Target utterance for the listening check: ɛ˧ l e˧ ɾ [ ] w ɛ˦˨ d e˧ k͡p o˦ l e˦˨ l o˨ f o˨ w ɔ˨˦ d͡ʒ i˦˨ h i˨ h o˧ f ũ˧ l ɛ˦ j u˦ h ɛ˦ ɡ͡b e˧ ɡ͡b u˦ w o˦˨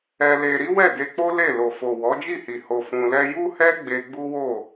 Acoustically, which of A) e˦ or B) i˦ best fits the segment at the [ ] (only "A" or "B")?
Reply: B